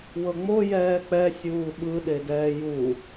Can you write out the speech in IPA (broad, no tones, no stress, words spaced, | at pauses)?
wɤŋ͡mo jɛːk͡pɛ sʲuːɓɯ ɗedɛːju